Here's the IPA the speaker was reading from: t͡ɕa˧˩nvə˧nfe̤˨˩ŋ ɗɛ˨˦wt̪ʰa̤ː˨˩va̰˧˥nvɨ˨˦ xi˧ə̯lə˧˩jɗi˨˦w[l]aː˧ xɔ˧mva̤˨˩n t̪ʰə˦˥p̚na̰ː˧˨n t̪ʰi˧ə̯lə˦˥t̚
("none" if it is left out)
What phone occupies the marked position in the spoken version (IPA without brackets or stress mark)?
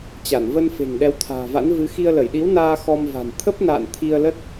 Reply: n